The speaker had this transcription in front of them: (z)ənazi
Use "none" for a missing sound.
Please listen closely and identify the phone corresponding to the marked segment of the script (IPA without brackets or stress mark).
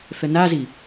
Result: θ